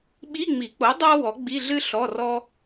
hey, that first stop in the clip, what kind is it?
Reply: implosive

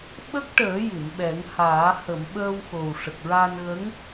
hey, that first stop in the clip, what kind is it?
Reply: implosive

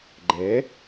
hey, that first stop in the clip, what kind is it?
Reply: click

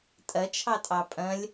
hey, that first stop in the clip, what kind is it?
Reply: ejective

